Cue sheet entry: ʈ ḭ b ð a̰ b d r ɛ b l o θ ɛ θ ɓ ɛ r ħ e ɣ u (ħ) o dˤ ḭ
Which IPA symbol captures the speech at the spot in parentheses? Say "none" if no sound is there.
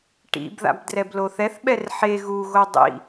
ɣ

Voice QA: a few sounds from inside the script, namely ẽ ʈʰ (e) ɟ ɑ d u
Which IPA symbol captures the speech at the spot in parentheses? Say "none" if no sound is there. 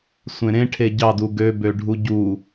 e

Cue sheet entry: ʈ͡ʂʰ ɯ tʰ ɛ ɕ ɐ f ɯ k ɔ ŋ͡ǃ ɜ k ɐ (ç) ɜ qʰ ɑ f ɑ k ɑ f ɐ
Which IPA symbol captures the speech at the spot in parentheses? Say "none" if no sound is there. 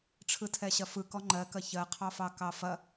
ç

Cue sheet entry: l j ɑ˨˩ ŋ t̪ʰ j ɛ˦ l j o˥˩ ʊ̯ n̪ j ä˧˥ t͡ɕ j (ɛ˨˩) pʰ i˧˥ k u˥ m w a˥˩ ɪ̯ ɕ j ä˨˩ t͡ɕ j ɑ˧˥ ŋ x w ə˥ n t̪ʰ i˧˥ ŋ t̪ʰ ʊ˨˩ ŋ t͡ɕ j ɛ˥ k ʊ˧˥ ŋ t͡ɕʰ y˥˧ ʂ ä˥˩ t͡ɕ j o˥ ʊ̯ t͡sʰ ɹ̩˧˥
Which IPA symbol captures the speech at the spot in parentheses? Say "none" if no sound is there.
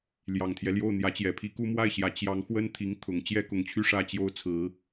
ɛ˨˩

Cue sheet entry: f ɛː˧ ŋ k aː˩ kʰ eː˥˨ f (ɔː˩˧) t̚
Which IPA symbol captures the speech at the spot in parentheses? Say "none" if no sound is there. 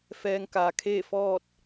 ɔː˥˨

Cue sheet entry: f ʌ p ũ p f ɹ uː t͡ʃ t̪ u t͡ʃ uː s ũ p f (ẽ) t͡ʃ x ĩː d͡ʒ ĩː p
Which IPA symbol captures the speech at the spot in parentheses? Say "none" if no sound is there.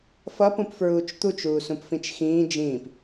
ĩ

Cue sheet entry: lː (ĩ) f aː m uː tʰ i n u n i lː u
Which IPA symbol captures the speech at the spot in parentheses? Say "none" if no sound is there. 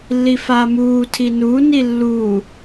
i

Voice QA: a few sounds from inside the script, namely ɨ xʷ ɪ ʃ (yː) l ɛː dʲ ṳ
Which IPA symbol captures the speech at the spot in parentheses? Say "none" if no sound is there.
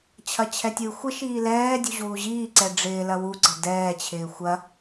iː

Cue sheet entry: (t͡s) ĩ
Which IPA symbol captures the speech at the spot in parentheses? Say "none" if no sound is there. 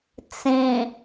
t͡s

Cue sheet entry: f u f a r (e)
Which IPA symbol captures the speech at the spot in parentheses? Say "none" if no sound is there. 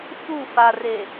e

